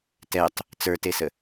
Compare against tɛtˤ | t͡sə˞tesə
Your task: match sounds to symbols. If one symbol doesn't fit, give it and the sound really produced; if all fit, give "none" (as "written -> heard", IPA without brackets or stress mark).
none